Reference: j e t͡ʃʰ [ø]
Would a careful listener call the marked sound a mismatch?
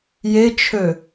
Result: no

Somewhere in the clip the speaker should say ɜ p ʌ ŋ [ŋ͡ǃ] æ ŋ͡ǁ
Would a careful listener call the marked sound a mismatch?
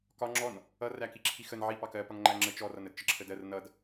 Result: no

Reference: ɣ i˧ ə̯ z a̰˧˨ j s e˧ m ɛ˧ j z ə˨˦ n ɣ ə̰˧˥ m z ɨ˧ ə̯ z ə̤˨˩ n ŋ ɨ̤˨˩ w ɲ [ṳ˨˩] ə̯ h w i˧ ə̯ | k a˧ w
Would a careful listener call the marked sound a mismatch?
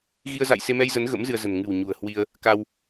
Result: no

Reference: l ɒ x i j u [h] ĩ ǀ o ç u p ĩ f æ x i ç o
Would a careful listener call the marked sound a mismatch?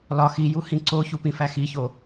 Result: no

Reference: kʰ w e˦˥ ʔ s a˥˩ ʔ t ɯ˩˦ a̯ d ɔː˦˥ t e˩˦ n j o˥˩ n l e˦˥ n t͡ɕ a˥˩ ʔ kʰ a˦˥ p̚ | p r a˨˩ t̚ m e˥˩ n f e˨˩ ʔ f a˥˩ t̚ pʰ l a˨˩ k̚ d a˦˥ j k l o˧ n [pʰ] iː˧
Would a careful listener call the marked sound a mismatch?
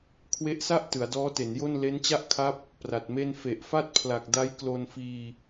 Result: yes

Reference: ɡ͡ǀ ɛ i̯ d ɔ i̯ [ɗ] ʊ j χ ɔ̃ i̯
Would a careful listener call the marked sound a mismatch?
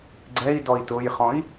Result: yes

